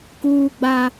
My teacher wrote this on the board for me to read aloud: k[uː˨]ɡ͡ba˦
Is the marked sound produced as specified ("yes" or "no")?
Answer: no